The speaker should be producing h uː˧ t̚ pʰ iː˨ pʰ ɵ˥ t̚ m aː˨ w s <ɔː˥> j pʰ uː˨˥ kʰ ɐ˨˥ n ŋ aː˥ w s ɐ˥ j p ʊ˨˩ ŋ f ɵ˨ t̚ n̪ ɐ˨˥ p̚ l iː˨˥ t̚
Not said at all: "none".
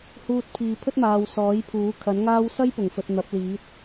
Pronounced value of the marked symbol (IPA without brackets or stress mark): ɔː˨˥